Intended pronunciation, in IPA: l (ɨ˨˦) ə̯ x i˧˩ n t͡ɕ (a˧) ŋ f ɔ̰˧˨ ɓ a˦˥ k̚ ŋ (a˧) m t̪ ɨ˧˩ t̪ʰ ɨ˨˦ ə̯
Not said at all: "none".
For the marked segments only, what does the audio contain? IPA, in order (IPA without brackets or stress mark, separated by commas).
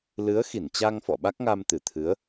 ɨ˨˦, a˧, a˧